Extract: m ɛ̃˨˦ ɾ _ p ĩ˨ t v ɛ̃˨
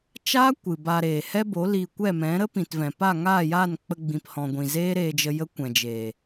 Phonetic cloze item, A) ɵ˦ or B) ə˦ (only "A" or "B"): B